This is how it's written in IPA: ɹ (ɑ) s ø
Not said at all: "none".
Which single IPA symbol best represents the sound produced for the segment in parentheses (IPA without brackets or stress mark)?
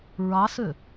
ɑ